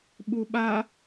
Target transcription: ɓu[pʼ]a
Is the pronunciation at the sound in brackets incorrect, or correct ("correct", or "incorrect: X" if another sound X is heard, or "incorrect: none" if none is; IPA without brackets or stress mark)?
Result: incorrect: ɓ